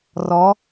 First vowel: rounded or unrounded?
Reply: rounded